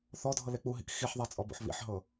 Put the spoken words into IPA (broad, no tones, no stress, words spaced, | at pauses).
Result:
θɔdʱɤle k͡puɦḭk xiħðˤat͡sʼɔbo̰ħ βḭħɦɤ